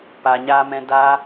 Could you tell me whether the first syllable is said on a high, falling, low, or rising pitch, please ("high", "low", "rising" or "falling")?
low